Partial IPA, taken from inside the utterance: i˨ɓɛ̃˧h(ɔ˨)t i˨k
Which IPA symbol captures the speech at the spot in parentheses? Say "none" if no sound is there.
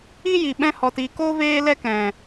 ɔ˨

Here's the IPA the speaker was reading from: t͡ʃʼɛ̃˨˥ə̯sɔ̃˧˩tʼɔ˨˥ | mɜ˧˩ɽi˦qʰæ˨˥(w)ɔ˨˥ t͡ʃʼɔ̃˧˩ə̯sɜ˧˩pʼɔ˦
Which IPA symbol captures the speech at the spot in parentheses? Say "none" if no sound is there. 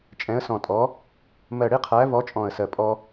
v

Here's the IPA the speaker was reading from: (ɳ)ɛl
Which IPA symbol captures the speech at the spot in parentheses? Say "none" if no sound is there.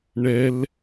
ɳ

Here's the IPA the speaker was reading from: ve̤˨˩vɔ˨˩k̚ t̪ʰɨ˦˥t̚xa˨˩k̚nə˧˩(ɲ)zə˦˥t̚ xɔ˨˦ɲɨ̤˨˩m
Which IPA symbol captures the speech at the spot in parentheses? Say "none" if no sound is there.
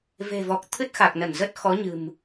n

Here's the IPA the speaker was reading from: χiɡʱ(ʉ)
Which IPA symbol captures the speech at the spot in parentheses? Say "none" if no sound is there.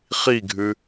ʉ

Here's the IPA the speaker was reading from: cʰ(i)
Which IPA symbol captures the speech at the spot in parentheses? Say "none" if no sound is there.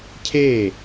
e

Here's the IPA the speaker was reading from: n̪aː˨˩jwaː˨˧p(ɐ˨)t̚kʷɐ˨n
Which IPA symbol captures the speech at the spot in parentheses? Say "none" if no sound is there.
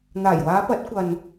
ɐ˨˥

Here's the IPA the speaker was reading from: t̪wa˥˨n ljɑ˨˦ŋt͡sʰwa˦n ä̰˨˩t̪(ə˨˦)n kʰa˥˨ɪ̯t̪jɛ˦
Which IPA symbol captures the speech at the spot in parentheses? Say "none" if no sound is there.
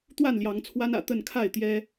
ə˥˨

